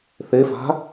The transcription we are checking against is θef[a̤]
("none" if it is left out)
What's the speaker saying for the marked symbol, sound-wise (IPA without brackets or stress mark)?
a̤